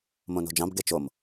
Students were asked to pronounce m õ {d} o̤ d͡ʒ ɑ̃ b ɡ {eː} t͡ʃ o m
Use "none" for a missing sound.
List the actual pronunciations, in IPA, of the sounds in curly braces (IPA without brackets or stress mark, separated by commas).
n, e